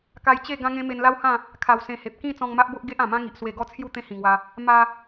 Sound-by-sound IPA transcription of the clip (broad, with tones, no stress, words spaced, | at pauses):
ka˧jt͡ɕe˥˧ ɡã˦ŋẽ˦ me˧nla˦whã˥˧ | kʰa˨˩w sẽ˧he˨p̚ kĩ˥˧ t͡sɔ̃˧ŋma˦ʔbo˦ʔ ɡe˦ʔã˨˩mã˦ ŋi˨ʔswe˧ɡɔ˦t͡sʰju˥˧ t̪ẽ˦hĩ˨˩ŋwa˧ | ma˦